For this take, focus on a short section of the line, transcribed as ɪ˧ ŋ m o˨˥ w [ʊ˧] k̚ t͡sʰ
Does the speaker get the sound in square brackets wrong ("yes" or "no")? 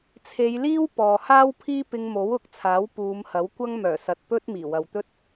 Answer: yes